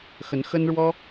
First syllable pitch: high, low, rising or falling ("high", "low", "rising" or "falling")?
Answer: rising